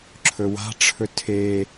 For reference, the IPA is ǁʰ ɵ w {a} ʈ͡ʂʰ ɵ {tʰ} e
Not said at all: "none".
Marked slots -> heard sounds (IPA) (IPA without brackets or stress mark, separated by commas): a̤, tʰ